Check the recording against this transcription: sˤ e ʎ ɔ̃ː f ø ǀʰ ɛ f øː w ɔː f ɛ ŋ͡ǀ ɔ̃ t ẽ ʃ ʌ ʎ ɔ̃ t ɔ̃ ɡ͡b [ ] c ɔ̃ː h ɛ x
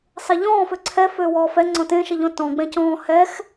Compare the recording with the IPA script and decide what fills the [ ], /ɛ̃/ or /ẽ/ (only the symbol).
ɛ̃